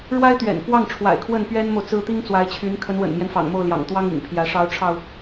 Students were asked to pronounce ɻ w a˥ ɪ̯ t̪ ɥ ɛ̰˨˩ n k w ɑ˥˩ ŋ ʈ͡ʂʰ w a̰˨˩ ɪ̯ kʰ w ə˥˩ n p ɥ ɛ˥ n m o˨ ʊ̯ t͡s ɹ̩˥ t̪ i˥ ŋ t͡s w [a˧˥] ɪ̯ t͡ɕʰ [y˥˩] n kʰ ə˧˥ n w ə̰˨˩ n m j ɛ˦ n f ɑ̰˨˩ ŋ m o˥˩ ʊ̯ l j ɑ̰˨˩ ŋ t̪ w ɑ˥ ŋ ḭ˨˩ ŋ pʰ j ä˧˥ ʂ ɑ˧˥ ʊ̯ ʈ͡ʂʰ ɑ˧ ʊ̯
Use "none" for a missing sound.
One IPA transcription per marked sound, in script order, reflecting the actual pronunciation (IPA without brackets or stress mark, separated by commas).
a˧˥, y˧˥